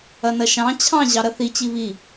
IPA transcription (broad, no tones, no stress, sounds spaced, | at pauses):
ɐ n ɐ ʃ ɑ̃ t͡ɕʰ ɑ̃ ʑ ɑ ɾ ɐ θ i t͡ɕ i β i